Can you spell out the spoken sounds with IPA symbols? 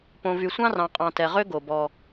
p õ˨ v y˨ sʷ ɑ̃˦ r ɑ̃˨ qʼ ɑ̃˨ t ɛ˨ ʁ ø˦ ɡ o˨ b ɔ˦

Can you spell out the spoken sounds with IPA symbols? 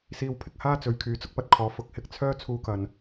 s iː˧ w pʰ ɪ˨ k̚ h aː˥ t͡s ɵ˨ ɥ kʰ yː˨˧ t͡s ʊ˥ k̚ p ɐ˧ t̚ kʰ ɔː˨˧ f ʊ˧ k̚ h ɪ˧ k̚ t͡sʰ œː˥ t͡sʰ uː˧ k ɐ˨ n

